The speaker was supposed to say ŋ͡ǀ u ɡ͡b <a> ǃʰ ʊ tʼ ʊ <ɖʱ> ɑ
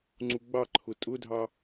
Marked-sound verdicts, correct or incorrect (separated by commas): incorrect, incorrect